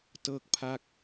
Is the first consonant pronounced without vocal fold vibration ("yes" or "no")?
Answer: yes